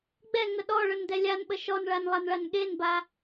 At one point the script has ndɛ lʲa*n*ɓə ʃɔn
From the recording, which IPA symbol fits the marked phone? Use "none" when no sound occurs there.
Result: n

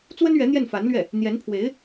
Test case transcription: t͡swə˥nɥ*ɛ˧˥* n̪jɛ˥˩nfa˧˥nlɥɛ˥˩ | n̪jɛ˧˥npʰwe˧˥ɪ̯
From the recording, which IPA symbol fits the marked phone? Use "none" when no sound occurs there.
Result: ɛ˧˥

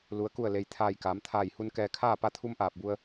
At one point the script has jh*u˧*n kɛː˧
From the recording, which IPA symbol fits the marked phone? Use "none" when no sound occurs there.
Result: u˧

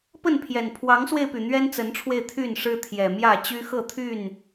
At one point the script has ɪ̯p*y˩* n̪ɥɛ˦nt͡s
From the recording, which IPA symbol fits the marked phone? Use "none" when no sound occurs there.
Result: y˩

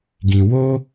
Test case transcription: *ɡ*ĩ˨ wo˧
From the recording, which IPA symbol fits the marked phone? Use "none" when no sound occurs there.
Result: ɡ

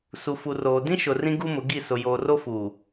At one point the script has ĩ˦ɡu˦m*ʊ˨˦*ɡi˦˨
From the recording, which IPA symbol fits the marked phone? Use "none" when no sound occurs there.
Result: ʊ˨˦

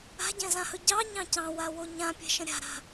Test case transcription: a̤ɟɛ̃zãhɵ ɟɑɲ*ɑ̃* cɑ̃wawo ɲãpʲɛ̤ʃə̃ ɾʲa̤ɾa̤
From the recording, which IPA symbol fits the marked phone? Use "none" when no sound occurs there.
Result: ɑ̃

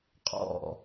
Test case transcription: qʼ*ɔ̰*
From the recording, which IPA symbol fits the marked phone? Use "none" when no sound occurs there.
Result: ɔ̰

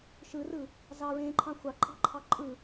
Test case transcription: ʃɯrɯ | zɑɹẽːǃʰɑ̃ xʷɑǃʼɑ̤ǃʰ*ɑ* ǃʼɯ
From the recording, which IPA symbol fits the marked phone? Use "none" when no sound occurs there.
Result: ɑ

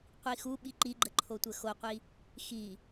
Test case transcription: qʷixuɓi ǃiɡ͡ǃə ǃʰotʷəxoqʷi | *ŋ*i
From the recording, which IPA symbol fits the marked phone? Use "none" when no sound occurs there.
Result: x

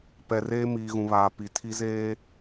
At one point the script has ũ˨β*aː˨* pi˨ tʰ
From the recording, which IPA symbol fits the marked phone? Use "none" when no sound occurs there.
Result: aː˨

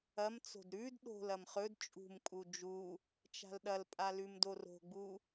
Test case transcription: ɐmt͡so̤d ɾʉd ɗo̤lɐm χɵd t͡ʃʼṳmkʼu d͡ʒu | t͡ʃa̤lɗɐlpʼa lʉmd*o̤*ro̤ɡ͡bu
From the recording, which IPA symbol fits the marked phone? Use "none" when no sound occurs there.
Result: o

